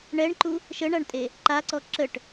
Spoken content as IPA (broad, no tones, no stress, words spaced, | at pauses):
ɳɛɳǃu | ʃəɳaɳtʼe | ǃaǀɔ ǁəʈ